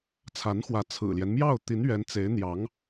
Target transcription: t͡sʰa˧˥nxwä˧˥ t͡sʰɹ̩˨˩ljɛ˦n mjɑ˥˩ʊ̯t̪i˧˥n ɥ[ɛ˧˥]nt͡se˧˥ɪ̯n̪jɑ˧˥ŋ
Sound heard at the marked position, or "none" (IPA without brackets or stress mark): ɛ˧˥